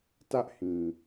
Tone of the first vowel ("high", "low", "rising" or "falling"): high